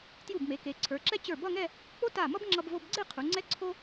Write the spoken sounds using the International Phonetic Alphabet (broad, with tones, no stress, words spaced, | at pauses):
tju˧˩bme˩˧ ke˩˧ǀʰə˞˩˧ǁɛ˥ t͡ɕə˞˧˩bʌ˥˧ŋɛ˥˧ | k͡po˥ta˧˩mʌ˥b ŋ͡ǁʌ˧bvo˧bɡ͡ǀe˥˧ qʰu˩˧ŋ͡ǀɛ˥ǀʰo˥